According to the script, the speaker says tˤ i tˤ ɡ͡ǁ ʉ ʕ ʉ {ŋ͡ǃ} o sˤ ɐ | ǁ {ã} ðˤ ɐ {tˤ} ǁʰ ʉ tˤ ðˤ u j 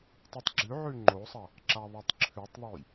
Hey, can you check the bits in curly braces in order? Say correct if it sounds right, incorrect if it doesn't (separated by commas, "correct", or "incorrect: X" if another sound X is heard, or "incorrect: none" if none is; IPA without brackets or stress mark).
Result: correct, incorrect: a, correct